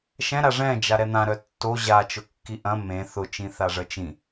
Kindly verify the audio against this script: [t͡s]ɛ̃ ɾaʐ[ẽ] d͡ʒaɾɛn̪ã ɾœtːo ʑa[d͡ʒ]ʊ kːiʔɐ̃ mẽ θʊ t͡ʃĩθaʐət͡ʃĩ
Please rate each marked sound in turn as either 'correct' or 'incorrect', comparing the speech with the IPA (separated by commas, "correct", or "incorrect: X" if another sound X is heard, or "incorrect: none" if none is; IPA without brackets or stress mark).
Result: incorrect: ʃ, incorrect: ɛ̃, incorrect: t͡ʃ